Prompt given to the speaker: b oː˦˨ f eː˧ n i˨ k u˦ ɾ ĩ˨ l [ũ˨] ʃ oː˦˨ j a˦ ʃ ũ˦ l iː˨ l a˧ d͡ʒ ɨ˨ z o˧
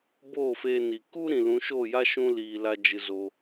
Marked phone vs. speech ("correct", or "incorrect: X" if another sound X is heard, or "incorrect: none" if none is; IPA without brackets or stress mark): incorrect: ũ˨˦